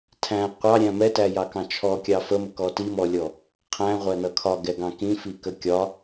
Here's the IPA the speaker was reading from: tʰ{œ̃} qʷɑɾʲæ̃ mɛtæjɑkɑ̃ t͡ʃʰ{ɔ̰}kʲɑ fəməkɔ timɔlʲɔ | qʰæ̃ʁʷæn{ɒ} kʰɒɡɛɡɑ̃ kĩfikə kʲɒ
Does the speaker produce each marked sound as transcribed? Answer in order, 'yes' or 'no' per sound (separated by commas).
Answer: no, no, no